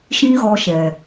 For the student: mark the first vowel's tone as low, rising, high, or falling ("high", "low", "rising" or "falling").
high